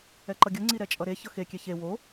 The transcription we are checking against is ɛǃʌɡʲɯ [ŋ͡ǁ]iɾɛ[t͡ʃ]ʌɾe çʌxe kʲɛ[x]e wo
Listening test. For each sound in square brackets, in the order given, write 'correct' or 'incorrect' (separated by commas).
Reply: incorrect, incorrect, incorrect